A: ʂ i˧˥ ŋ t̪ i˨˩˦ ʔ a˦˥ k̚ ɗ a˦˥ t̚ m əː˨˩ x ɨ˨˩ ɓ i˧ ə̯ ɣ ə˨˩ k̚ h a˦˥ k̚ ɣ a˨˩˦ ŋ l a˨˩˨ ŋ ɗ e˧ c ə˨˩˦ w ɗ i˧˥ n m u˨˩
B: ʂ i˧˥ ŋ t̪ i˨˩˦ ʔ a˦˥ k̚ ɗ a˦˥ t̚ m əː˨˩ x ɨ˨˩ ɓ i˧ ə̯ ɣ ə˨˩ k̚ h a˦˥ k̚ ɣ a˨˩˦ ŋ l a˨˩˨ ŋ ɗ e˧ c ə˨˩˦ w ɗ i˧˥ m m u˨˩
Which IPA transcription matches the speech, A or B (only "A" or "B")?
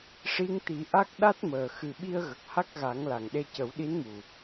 A